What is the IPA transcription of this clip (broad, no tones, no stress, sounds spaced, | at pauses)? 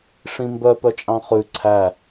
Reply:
ʂ ĩ m b œ p œ t͡ʃʼ ɑ̃ χ ʉ ǀʰ æ